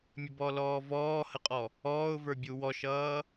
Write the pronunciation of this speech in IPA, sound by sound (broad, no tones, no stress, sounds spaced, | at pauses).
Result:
mʲ ə b ɔ l ɔː v ɔː h ə qʼ ɔ | ɔː ʊ̯ v ə˞ bʲ u w ɔ ʃ ʌː